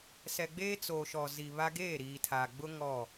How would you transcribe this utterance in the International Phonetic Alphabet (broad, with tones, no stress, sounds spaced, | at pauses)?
s ɛ˨ ɡ͡b eː˦ t͡s o˨ ʃ ɔ˨ z i˨ β a˦ ɡ eː˦˨ ɾ iː˨ tʰ a˨ ɡ͡b ʊ˦ ŋ ɔ˦˨